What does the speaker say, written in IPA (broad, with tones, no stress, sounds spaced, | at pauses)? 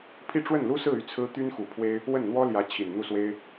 pʰ i˥˧ ʈ͡ʂ w ə˥˩ n l u˥ s ɹ̩˥˧ y˥˩ t͡sʰ ɹ̩˥ t̪ y˥ n x u˨˩ pʰ w e˥ ɪ̯ | w ə˥˩ n n̪ w ɔ˥ l j ä˧˥ t͡ɕʰ i˨˩ n n̪ u˥˩ s w e˥ ɪ̯